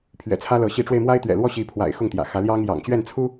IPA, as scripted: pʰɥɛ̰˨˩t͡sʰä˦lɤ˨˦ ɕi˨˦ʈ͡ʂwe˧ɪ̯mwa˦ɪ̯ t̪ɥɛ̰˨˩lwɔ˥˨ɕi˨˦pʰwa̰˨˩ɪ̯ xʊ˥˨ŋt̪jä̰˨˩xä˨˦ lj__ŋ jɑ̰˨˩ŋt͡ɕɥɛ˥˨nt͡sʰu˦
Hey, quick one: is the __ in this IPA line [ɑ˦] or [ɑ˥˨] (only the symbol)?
ɑ˦